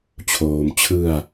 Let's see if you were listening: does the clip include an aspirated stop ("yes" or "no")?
yes